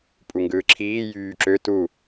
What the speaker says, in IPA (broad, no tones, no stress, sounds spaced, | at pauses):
pʼ u ŋ ɡ ɯː ǁʰ iː j yː ǁ ø t u